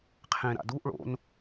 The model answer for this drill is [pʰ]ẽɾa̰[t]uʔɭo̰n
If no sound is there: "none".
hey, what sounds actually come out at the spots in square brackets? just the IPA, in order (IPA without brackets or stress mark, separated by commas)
qʰ, d